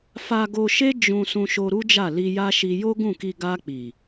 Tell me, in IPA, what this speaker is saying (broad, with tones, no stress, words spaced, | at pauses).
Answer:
fa˧ɡo˧ʃe˦ d͡ʒũ˧ sũ˧ʃo˧ɾu˦d͡ʒa˦˨ li˧ja˦ʃi˧ jo˦ɡũ˦˨ki˧ ɡa˧k͡pi˨